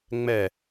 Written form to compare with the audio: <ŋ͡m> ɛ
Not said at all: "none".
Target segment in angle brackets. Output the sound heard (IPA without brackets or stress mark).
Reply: ŋ͡m